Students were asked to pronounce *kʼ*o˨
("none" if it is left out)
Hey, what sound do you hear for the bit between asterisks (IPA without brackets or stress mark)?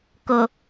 k